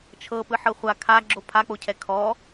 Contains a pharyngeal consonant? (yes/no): yes